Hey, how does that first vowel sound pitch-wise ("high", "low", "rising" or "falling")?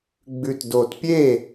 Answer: low